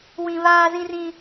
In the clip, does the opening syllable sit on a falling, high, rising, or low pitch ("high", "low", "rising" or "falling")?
high